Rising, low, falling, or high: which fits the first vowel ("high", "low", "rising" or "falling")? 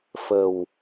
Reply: low